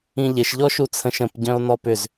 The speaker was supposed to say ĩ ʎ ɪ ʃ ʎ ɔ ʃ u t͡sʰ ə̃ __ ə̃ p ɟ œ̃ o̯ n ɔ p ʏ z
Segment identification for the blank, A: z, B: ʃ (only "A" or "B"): B